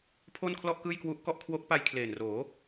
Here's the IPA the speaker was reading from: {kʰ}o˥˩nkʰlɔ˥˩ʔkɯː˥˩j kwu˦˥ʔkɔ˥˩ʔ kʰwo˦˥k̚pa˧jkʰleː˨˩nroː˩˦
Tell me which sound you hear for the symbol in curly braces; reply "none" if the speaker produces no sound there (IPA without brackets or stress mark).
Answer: pʰ